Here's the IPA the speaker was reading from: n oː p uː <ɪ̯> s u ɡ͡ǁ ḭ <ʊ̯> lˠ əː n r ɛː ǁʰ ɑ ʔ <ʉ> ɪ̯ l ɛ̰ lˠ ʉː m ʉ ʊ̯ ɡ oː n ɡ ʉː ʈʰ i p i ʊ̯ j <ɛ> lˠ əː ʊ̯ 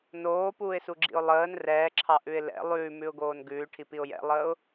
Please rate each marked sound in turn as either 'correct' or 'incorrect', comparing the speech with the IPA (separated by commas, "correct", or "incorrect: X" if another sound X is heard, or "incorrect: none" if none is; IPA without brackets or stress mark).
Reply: correct, correct, correct, incorrect: ɛ̰